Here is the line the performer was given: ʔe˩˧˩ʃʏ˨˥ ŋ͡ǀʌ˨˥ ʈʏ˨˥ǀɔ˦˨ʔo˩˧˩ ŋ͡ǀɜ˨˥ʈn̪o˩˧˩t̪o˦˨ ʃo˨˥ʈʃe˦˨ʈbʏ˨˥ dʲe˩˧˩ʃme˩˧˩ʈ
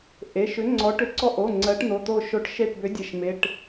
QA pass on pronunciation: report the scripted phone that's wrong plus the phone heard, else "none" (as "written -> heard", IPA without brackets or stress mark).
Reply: ʌ˨˥ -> ɔ˨˥